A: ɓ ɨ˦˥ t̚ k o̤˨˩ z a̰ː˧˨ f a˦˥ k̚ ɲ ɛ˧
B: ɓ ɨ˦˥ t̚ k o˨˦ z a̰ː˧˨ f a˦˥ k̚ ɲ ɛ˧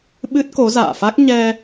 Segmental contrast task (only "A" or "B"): B